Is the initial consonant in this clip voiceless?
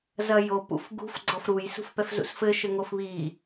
no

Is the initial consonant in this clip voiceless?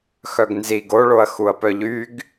yes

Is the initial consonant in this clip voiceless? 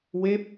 no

